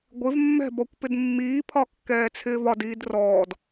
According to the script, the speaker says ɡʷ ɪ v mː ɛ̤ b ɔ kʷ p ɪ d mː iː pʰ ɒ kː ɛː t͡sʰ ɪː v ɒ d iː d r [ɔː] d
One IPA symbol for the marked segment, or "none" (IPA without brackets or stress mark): ɔː